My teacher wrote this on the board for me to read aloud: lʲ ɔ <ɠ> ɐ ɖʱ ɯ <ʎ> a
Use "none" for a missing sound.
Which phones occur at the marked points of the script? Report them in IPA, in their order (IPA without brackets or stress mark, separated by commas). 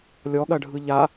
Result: ɠ, ʎ